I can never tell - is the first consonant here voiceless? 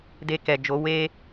no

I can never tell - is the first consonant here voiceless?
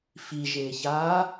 yes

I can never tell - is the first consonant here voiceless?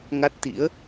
no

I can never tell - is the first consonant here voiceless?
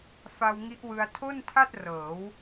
yes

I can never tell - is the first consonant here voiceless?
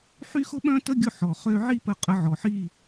yes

